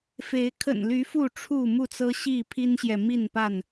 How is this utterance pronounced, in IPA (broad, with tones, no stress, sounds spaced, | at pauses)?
f e˨˦ ɪ̯ kʰ ə̰˨˩ n l y˨˦ f u˥˨ ʈ͡ʂʰ u˥˨ m u˥˨ t͡s ɤ˦ ɕ i˥˨ pʰ i˦ n ɕ j ɛ˨ m i˥˨ n p a˥˨ n